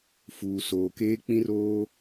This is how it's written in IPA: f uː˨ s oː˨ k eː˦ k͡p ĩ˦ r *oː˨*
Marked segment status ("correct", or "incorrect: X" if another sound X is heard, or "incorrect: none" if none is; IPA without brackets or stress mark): incorrect: oː˦